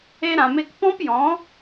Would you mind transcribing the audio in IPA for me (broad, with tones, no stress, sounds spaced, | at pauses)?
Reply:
e˧ ɾ ã˨ m e˧ k p ɔ̃˦ p j ɔ̃˨˦